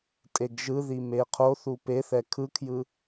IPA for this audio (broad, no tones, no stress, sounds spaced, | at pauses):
tʼ e ɡ ʒ ɯ ð i m e qʰ o θ u p e θ ɛ kʰ ɯ kʰ j ɯ